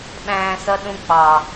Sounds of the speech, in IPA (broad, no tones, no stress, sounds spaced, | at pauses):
ɓ æ̃ː s ʌ ɗ ũ k͡p ɑ